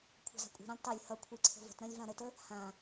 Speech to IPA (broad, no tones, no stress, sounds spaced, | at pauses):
kʷʰ a̤ z a̤ kʷʼ i̤ ɾ ɐ̃ lʲ tˤ ɐ lʲ h ʌ kʷʰ i ǀʰ ə̤ v ə̤ t ɾ ɐ̃ lʲ v ã ɾ ə t ə | h ã